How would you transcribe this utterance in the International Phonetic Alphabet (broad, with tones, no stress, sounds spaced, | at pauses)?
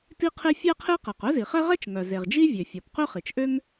t i˥ qʰ e˥ fʲ æ˥ qʰ e˥ q æ˩ q œ˥ z i˩ χ ɛ˥ ʁ ɛ˥ t͡ʃ ŋ œ˩ z e˩ ʁ d͡ʒ i˥ vʲ ø˩ fʲ ɔ˩ p q ø˥ χ i˩ t͡ʃ ʔ ø˥ ŋ